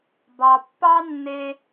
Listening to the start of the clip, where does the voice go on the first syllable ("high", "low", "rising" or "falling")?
low